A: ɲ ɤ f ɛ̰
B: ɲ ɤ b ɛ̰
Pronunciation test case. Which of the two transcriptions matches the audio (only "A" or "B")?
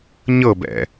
B